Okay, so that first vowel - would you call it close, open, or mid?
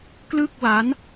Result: close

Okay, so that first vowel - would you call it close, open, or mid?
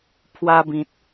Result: open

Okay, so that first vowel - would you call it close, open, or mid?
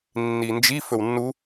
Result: close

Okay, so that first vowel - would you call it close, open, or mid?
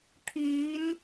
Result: close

